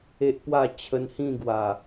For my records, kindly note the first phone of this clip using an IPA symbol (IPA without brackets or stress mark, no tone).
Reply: e